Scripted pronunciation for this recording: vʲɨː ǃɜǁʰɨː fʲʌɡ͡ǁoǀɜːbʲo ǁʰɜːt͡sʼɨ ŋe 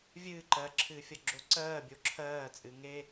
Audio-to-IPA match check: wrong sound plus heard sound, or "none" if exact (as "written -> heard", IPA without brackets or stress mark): none